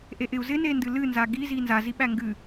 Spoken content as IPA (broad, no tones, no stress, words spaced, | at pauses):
ʔeʔɪu̯ zɪnendɨ lɨnza ɡizi nzaziɓæ ŋɡɨ